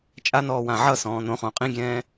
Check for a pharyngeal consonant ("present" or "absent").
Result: present